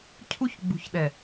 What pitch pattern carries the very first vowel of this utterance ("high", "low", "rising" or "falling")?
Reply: high